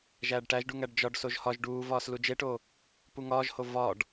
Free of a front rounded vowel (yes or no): yes